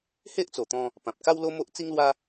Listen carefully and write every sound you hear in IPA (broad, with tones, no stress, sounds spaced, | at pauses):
h e˦ ʔ t͡s o˨˩ t̪ ɔ̃˧ | p ã˨ p̚ k a˦ w l o˦ m o˦ ʔ t͡s i˦ ŋ l w a˦